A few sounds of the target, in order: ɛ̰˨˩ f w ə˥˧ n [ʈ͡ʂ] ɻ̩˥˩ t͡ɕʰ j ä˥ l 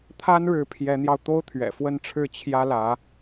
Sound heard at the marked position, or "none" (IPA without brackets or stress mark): ʈ͡ʂʰ